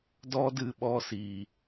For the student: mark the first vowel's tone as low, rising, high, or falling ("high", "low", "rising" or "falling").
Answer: high